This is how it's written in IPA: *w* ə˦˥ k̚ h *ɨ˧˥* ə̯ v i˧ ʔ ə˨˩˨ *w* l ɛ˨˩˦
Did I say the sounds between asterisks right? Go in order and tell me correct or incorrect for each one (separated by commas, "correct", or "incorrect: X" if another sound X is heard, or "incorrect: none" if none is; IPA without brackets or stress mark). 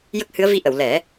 incorrect: j, correct, correct